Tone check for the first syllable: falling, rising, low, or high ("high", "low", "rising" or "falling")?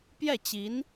falling